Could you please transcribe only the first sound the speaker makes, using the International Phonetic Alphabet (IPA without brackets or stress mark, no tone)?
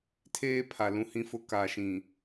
tʰ